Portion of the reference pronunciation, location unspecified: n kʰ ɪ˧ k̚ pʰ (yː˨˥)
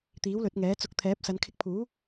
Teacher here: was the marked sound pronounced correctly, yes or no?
no